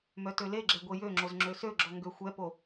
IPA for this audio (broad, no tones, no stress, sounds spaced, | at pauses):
m œ t ø l e ɡ͡ǁ ɛ ɡʷ e j ø ŋ͡ǁ o z ŋ͡ǁ ø s ø ɡ͡ǁ ɔ ŋ ɡ ø xʷ ɛ p o